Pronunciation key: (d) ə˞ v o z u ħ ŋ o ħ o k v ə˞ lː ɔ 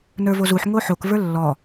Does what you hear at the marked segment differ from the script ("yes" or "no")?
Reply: yes